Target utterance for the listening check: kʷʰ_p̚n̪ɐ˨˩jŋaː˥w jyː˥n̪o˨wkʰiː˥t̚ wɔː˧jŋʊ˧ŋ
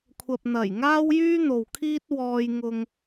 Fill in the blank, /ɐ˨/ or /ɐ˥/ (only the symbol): ɐ˨